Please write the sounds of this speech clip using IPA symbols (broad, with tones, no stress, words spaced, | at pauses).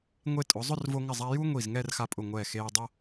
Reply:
ŋʷe˥˧ tʼʊ˩˧zˤʊ˥˧rvo˧ŋɪ˧˩ zˤa˧ju˥ŋʷi˧˩z ŋɛ˥˧rxa˧ pʼʊ˧˩ŋʷɛː˧˩xeː˧ dˤo˥